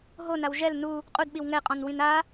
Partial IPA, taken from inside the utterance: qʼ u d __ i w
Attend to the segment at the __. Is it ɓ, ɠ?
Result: ɓ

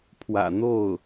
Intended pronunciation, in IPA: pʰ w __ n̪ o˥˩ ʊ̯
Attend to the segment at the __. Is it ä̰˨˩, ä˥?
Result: ä̰˨˩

